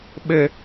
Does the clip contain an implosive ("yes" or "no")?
yes